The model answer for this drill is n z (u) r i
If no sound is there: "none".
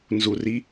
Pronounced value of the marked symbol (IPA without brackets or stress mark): u